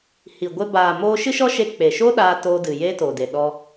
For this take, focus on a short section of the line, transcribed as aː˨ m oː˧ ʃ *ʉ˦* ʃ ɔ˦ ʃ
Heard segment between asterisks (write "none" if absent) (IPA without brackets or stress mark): ɨ˦